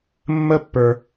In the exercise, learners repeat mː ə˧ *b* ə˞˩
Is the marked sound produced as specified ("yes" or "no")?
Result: no